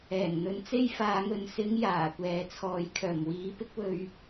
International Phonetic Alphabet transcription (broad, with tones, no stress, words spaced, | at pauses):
ɛː˨˩ŋn̪ɵ˨˧n t͡se˥jfaː˨˧ŋɵ˨n sɪ˨˧ŋ jaː˨˩kʷɛː˨t͡sʰɔː˨j kʰœː˨˩mwiː˨˧ pɪ˥k̚wɵ˧ɥ